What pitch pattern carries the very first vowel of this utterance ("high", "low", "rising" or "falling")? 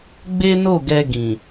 high